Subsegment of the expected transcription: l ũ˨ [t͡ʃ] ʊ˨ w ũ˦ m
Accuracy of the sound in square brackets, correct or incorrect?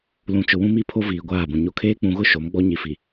correct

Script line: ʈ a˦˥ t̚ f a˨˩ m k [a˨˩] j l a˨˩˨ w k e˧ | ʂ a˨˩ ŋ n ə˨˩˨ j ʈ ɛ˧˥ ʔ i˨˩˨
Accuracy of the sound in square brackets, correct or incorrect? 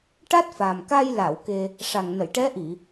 incorrect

